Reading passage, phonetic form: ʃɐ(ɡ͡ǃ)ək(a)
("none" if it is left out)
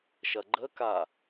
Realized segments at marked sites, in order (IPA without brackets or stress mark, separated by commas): ɡ͡ǃ, a